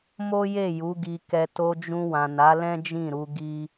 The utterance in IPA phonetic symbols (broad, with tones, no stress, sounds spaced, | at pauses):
m o˦ j e˦˨ j u˨˦ ɡ i˧ k ɛ˧ t o˧ d͡ʒ ũ˧ w ã˨ n a˨˦ l ɛ̃˦ d͡ʒ ĩ˦˨ ɾ u˧ ɡ i˦